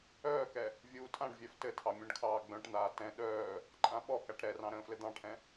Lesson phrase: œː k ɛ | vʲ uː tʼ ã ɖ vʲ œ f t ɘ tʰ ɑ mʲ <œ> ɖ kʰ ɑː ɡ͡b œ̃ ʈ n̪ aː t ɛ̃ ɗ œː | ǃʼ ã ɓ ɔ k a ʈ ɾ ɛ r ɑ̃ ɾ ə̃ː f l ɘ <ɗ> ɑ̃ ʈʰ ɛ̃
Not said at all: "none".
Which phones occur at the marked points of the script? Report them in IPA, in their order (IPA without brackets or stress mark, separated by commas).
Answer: œ̃, d̪